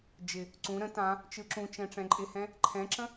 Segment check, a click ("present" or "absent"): present